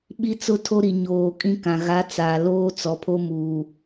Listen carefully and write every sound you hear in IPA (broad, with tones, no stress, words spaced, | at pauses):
ɓi˦t͡sʊ˦tʰo˦ɾi˨ ɲoː˨kʼĩ˦kã˨ ɣa˨˦t͡sa˨ loː˦t͡sɔ˨pʰo˦ muː˨